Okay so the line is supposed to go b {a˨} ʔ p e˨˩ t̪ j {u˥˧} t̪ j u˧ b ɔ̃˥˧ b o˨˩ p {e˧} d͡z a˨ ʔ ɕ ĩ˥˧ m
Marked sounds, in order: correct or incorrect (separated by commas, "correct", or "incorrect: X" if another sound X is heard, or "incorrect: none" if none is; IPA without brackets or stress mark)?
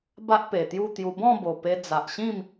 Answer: incorrect: a˦, correct, correct